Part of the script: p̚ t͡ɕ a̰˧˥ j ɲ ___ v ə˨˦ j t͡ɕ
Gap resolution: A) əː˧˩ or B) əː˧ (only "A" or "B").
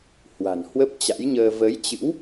B